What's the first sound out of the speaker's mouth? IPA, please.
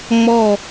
ŋ͡m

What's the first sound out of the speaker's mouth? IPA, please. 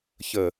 ç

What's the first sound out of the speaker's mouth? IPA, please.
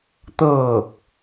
t̪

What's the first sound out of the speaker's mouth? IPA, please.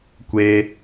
kʷ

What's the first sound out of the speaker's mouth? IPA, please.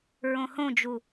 ɹ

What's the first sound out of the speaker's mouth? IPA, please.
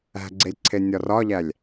æ̤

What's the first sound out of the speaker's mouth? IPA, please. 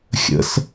xʲ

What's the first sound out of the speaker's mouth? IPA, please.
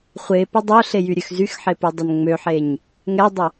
χʷ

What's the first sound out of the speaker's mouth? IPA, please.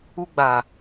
u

